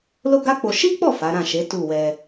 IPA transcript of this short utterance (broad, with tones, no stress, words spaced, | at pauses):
lo˦ɡa˦k͡po˧ ʃi˦k͡pɔ˦˨ fa˨˦ɾã˦˨ʃe˨˦ tu˦˨wɛ˧